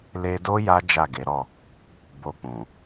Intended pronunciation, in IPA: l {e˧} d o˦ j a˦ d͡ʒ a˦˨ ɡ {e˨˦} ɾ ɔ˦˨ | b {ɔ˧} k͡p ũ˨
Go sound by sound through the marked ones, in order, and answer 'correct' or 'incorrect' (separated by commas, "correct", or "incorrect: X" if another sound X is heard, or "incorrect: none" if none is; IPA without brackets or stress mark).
correct, correct, incorrect: o˧